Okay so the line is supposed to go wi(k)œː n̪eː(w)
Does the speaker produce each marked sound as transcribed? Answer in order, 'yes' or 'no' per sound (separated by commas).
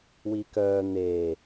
yes, no